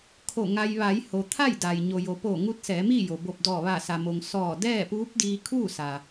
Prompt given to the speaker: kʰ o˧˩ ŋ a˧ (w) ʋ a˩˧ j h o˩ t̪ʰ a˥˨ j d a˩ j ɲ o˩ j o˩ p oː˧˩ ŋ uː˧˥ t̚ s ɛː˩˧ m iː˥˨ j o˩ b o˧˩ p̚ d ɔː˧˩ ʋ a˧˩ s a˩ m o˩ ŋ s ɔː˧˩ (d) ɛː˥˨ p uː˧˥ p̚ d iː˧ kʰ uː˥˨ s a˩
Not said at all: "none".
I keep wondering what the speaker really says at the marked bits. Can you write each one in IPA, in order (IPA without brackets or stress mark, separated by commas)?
j, d